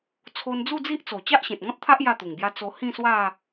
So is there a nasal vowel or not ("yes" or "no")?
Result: yes